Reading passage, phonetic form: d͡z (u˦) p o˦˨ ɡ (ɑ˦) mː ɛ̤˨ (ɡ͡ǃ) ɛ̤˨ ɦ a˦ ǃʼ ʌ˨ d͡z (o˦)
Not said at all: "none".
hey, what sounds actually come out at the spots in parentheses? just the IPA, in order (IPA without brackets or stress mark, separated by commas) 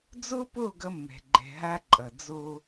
o˦, ʌ˦, ɡ͡ǃ, o˦